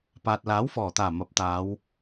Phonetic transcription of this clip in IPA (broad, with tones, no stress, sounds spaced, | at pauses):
p aː˨ t̚ l aː˨˥ w f ɔː˨˩ t̪ aː˨˩ m ɐ˨˥ p̚ t̪ aː˨˧ w